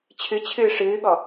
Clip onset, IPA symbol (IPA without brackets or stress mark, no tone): t͡ɕʰ